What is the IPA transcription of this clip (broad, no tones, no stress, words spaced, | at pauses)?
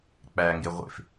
k͡pæŋɡe ʁʷḛf